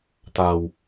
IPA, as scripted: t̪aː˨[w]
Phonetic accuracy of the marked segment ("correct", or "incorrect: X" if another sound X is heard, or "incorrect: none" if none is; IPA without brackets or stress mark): correct